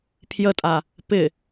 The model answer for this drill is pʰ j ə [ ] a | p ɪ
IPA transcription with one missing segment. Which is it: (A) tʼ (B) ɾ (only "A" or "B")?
A